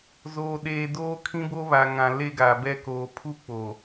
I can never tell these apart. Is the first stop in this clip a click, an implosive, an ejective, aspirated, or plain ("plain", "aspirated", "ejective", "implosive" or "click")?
implosive